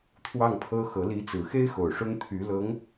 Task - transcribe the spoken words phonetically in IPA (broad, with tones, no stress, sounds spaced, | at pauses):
t̪ʰ w ɑ˥˩ ŋ pʰ ɤ˥ x ɤ˧˥ l i˧˥ t͡s ɹ̩˨˩ x e˥ ɪ̯ x o˨˩ ʊ̯ ʂ ʊ˥ ŋ t̪ʰ y˧˥ l ɤ˧˥ ŋ